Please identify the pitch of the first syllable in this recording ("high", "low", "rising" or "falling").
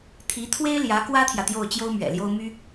rising